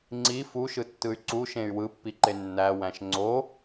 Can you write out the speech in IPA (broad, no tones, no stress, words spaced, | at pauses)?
ŋ͡ǀi fuʃɯtːɯy̯ ǀuʃẽy̯ wɯpːiǃe nːæwæ̃ʃ ŋ͡ǀo